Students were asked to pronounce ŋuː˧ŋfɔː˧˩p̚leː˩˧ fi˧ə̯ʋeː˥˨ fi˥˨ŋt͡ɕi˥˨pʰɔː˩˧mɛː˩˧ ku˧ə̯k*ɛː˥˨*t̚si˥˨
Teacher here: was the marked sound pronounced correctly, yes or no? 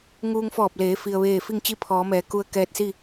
no